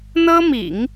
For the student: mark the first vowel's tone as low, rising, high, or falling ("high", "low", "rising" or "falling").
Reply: high